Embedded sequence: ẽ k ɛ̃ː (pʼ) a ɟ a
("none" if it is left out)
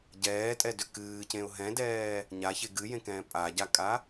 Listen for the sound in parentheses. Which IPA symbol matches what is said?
pʼ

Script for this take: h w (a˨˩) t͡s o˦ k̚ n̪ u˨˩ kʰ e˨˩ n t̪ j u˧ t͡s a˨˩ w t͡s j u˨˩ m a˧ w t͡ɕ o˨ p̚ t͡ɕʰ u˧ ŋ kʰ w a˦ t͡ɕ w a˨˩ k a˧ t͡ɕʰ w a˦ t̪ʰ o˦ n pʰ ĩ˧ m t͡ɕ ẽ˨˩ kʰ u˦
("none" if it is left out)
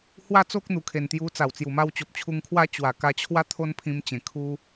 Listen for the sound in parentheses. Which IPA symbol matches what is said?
a˦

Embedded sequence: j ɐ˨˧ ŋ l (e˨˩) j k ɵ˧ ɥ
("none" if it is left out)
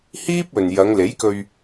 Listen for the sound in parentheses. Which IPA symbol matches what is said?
e˨˥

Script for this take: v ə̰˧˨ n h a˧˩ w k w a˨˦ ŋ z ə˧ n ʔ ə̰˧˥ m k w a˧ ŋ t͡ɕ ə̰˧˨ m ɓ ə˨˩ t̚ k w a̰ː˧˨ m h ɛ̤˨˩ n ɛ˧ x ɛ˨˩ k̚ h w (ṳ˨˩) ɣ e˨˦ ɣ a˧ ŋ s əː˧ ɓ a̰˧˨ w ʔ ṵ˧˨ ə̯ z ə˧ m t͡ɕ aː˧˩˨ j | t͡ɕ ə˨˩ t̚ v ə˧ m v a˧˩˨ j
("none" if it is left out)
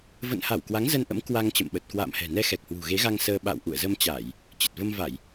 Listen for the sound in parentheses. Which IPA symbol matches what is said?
ṳ˨˩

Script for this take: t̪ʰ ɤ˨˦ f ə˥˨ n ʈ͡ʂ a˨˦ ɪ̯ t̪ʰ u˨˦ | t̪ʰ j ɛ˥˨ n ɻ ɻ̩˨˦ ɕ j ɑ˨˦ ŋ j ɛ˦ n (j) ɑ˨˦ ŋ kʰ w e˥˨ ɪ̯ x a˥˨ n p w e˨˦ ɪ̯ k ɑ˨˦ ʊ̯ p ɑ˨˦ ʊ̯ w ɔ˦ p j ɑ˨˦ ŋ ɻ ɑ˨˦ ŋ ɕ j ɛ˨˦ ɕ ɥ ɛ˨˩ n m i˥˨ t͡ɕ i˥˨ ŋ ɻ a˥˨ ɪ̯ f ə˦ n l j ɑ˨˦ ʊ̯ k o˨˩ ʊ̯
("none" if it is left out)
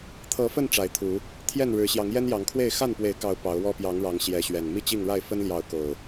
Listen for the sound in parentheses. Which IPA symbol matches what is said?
j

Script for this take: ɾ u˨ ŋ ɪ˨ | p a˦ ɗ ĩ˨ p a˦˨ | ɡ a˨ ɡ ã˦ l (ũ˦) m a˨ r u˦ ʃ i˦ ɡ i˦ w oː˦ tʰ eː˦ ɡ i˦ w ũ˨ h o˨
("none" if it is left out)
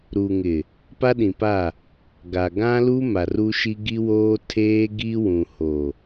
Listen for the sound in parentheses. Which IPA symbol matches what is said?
u˦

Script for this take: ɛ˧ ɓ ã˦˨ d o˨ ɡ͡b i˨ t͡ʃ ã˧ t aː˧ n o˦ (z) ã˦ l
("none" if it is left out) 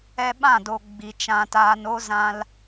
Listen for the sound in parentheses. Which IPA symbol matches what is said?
z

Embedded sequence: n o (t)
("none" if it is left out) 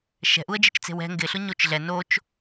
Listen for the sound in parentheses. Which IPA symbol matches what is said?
t͡ʃ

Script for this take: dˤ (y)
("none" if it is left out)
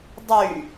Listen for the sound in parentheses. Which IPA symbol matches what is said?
y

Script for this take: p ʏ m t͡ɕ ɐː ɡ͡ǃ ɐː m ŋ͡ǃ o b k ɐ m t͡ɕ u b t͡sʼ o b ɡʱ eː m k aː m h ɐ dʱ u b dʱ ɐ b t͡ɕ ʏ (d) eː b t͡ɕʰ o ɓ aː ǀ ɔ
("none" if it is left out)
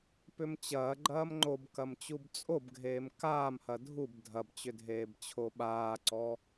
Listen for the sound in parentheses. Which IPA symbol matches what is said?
dʱ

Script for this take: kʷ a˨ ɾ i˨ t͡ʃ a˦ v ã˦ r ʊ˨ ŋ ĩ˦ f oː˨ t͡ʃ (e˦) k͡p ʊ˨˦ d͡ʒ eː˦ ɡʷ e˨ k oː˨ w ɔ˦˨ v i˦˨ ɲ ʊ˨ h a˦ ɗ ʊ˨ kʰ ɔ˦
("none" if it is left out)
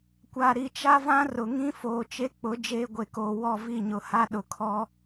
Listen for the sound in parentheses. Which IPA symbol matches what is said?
e˦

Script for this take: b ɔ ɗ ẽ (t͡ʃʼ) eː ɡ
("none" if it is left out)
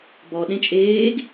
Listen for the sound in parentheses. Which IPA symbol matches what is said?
t͡ʃʼ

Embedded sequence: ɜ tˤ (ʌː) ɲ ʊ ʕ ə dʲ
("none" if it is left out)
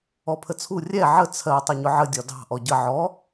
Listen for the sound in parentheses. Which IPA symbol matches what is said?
ʌ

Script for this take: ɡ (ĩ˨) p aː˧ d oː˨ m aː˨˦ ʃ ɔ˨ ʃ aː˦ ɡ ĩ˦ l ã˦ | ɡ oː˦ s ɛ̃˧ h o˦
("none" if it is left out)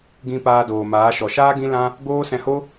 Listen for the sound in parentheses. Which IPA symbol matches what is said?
ĩ˧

